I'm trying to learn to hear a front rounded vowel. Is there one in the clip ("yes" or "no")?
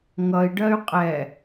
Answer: yes